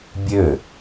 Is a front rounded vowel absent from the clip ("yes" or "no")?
no